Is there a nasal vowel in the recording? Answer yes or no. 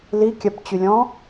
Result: yes